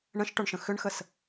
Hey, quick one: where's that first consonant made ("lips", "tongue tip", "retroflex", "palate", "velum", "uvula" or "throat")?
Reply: retroflex